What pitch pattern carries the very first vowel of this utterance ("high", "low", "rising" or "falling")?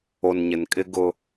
low